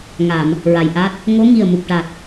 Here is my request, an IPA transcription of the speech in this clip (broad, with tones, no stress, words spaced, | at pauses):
ŋa˨˩˨m | ɹa˨˩jʔa˦˥t̚ | ŋo˧˥ŋi˨˩ə̯ mu˨˩p̚ʈa˨˩t̚